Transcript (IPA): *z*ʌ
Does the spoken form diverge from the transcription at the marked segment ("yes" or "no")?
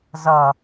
no